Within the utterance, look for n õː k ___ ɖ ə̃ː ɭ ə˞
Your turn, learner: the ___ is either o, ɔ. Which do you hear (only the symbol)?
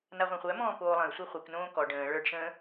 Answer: ɔ